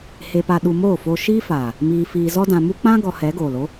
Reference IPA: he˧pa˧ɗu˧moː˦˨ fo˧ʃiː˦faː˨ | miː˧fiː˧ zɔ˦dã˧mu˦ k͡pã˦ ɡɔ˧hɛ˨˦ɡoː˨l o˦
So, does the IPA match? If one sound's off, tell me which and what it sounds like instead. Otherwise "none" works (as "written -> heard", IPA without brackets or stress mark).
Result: none